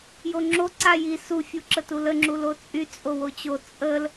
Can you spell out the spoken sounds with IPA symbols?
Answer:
j o ŋ͡ǁ o ǀ a j i s u fʲ u ǁ ə t u l ə ŋ͡ǁ u l o t͡sʼ y t͡sʼ o w o t͡ɕ o t͡sʼ ə l

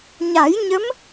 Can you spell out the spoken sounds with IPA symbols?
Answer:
ɲ a˨˩˦ j ɲ ə˧˥ m

